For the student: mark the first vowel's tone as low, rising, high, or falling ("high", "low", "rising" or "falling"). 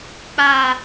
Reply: high